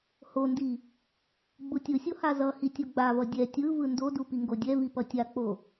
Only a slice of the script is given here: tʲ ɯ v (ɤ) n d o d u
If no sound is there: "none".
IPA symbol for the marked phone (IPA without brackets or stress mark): ɯ